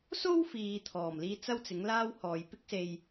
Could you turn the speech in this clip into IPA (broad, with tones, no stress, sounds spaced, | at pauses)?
s o˥ w f iː˨ t̪ʰ ɔː˨˩ m l iː˧ t͡s ɐ˥ w t͡s ɪ˨˥ ŋ l aː˥ w h ɔː˨ j p ɪ˥ k̚ s e˧ j